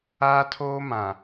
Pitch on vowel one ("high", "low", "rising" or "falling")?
high